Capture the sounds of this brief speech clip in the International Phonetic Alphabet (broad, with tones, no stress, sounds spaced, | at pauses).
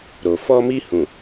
ɾ o˨ f ɔ˧ m i˧ h ũ˨